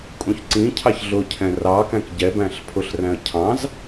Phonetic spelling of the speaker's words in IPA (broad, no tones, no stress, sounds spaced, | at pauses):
kʼ ũ ç ǀ ĩ cʰ ɑ ç ɮ ʊ cʰ ɛ̃ r ɑ k æ̃ k ɟ ɛ b æ̃ ɬ pʰ ʊ ɬ r æ̃ ə̯ cʰ ɑ̃ z